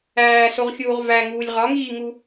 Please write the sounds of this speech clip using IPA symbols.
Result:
æː s o ʁ xʲ uː ʁ v æ ŋ uː lʲ ʁ ɒ ŋ iː ŋ u

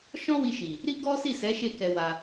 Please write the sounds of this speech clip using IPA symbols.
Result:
ʃ ɔ̃˦ w i˧ ʃ i˨ | ɾ i˦ ɡ ɔ˦ s i˦˨ s ɛ˨˦ ʃ e˦˨ k ɛ˧ w a˧

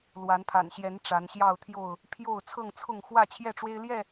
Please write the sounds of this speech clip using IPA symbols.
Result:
l w a˨˦ n pʰ a̰˨˩ n ɕ j ɛ˨˦ n ʈ͡ʂ a˨˦ n ɕ j ɑ˥˨ ʊ̯ t̪ʰ j o˥˨ ʊ̯ | pʰ j o˥˨ ʊ̯ t͡sʰ ɤ˥˨ ŋ t͡sʰ ʊ˥˨ ŋ x w ä˥˨ t͡ɕʰ j ɛ˥˨ ʈ͡ʂ w e˦ ɪ̯ l j ɛ˥˨

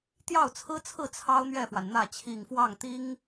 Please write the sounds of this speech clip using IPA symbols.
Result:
t̪ j ɑ˥˩ ʊ̯ t͡sʰ ɹ̩˥ t͡sʰ ɹ̩˥˩ t͡sʰ ɑ˥ ʊ̯ n̪ ɥ ɛ˥˩ f w a˩ n n̪ ä˥˩ t͡ɕʰ i˨˩ ŋ f w ɑ˥˩ ŋ t̪ i˥ ŋ

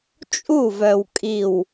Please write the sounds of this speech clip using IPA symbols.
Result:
t͡ʃʼ u˦˨ v œ˨ w kʼ i˨ w

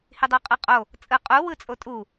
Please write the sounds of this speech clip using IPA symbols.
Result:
h i dˤ u qʼ ɯ qʼ o | t͡sʼ ɯ qʼ u w ɯ t͡sʼ o tʼ u

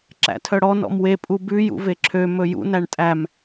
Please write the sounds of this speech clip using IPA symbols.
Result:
ǁ æ̰ tʰ œ ɽ ɔ n ɔ̰ m w e pʼ u b ʉ j ṵ v e ǁʰ ø m ɵ j ṵ n æ ɳ tʼ æ m

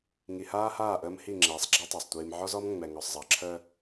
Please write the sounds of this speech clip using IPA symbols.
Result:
ŋ i˨ h aː˦ h aː˦˨ ʔ əː˦ m h i˦˨ ŋ͡ǁ ɛː˨ sˤ ɡ͡ǁ a˦ tˤ əː˨ sˤ tʷ iː˨ m ʕ ɔ˦ z ɔ˦ m ŋ͡m ɛ˨ ŋ ɔ˨ sˤ zˤ ɑ˨ ǁʰ əː˦

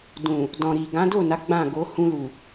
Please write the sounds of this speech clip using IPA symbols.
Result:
d ũ˨ | d ɔ̃˨ ɾ i˨ ɡ ã˨˦ d o˦˨ n a˨˦ ɡ͡b ã˦˨ ɡ o˨˦ h ũ˧ l u˨

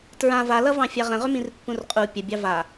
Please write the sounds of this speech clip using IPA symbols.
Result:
t ɹ ã v a l ʌ v ɑ̃ fʲ a ʁ ə̃ ʁ ʏ m ĩ r pː ũ r qʼ u pʲ ə bʲ ɑ v a

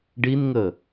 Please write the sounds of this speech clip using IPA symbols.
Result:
ɖ i n ŋ ə

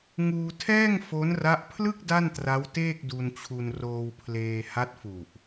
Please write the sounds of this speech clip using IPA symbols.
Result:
ŋ uː˧ tʰ ɛː˥˩ ŋ f o˦˥ n r a˦˥ ʔ pʰ l ɯ˥˩ k̚ d a˥˩ n t r a˦˥ w t eː˥˩ k̚ d u˧ n t͡ɕʰ u˧ n r oː˧ w pʰ l eː˧ h a˦˥ t̚ f u˨˩ ʔ

